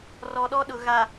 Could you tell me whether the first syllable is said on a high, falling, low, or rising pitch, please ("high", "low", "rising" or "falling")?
low